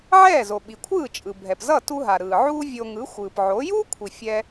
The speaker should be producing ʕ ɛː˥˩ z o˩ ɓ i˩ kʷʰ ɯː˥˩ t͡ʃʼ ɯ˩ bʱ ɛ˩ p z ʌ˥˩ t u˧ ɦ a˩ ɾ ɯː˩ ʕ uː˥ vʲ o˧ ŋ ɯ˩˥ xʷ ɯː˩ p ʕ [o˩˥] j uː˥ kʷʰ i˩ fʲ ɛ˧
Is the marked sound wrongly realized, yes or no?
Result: no